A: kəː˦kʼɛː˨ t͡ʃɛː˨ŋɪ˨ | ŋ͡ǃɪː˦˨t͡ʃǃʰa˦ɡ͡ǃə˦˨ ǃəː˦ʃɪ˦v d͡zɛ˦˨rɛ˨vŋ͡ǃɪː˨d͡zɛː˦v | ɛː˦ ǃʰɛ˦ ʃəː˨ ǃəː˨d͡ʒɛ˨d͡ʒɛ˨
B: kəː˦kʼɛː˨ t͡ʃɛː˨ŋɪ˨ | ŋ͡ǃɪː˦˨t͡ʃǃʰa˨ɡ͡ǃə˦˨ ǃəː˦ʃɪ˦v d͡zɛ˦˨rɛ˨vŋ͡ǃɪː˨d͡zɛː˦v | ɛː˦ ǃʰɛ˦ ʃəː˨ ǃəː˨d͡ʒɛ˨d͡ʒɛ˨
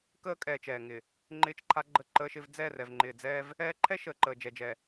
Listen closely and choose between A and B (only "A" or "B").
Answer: A